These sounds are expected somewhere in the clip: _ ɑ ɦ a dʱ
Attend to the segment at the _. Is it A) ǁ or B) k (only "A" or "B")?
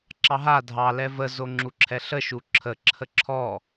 A